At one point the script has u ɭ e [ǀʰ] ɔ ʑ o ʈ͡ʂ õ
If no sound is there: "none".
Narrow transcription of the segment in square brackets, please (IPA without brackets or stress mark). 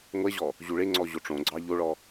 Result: ŋ͡ǀ